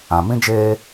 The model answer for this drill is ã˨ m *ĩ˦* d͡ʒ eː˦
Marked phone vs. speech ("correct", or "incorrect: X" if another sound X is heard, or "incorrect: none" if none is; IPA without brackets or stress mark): correct